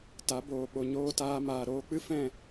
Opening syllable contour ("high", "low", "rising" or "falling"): rising